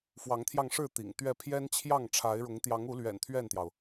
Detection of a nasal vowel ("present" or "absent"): absent